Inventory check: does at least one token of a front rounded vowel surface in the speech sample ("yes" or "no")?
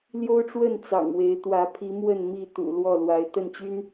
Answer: yes